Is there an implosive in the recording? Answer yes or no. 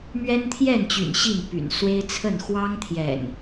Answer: no